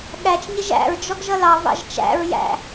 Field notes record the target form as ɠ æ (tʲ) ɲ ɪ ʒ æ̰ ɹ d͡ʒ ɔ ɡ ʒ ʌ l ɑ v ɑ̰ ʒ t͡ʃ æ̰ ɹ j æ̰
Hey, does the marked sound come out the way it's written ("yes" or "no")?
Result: no